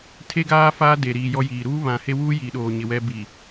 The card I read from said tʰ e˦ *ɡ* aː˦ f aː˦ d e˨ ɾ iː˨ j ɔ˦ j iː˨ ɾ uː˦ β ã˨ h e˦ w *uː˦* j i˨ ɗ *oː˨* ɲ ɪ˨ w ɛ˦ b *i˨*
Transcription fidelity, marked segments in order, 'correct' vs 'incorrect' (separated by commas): correct, correct, correct, correct